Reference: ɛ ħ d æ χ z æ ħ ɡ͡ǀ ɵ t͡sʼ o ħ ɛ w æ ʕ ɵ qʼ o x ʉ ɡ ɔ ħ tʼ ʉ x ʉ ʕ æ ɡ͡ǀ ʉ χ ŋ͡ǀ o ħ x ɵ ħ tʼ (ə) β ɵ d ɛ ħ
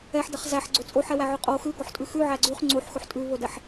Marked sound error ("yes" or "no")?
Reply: yes